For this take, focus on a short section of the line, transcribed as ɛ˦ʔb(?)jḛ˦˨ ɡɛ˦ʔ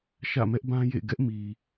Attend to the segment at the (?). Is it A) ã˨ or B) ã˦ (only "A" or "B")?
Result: B